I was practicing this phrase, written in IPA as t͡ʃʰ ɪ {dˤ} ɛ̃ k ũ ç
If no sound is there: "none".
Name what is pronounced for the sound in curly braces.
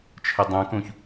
dˤ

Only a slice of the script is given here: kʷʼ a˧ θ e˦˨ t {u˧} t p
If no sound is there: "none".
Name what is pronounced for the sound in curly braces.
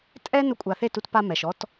u˧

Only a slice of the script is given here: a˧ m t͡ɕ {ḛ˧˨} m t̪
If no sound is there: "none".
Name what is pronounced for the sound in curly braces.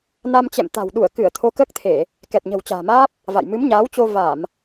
ɛ̰˧˨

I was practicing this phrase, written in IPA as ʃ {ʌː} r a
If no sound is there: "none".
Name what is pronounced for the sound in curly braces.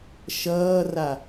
ʌː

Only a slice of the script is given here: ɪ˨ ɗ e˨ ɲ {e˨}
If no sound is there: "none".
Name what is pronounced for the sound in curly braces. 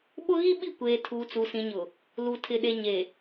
e˨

